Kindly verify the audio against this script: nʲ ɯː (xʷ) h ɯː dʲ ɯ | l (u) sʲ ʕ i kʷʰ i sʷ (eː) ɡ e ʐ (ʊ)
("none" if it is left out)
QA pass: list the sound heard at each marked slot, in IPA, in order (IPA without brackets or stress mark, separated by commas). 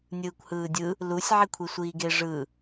kʷ, u, iː, ɯ